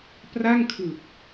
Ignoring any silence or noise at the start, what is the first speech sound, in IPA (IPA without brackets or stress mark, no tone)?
p